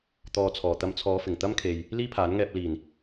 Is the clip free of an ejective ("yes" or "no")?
yes